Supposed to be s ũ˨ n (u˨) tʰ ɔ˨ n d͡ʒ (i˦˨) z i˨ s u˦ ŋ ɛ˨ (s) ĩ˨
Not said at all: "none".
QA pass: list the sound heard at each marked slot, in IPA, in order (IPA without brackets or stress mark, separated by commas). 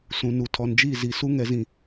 u˨, i˦˨, z